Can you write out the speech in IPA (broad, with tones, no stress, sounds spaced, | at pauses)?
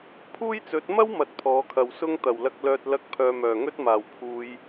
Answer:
pʰ uː˥ j t͡s ɵ˨˥ t̚ m ɐ˥ w m ɐ˧ t̚ pʰ ɔː˨˥ kʰ ɐ˨ w s ʊ˥ ŋ t̪ ɐ˨˩ w l ɐ˧ k̚ l œː˧ t̚ l ɐ˥ k̚ pʰ œː˧ m œː˨˩ ŋ ɵ˥ t̚ m aː˨˩ w pʰ uː˨˧ j